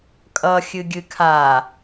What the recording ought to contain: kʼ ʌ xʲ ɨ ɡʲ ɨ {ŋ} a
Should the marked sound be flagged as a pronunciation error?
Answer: yes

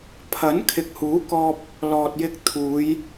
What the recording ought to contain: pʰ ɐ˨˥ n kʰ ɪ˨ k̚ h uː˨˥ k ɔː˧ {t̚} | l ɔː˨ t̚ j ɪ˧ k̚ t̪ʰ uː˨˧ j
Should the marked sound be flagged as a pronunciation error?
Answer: yes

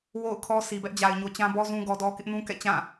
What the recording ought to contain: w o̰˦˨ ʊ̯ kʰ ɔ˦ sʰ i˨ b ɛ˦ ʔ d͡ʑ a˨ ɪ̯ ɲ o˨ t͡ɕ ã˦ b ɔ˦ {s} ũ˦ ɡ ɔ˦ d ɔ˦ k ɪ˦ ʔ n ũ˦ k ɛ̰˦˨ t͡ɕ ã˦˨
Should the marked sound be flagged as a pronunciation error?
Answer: yes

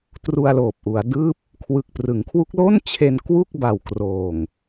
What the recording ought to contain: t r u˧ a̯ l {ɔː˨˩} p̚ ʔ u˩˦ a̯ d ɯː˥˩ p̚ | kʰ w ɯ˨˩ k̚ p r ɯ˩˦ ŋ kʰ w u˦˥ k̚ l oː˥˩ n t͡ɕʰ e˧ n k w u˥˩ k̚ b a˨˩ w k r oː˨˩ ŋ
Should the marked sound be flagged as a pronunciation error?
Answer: yes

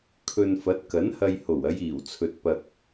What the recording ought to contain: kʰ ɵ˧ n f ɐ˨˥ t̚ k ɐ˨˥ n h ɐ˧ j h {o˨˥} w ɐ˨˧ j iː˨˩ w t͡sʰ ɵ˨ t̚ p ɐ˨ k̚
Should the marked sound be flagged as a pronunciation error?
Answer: yes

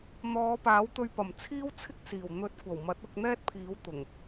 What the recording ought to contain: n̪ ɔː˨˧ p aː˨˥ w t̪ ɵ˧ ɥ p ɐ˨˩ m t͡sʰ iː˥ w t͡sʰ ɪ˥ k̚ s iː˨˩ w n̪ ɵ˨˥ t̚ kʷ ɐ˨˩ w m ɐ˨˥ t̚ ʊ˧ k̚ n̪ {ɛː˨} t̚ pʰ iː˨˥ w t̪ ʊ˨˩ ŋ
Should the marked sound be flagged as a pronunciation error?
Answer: yes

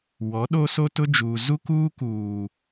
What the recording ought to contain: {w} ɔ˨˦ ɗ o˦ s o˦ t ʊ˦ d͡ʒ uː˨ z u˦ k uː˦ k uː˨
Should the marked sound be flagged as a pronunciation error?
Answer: no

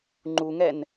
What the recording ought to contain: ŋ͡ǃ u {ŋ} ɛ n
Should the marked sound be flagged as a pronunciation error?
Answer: no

